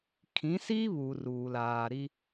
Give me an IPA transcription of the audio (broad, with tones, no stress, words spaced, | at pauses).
kʰĩ˨˦si˦ βu˨ruː˨laː˨ɾi˦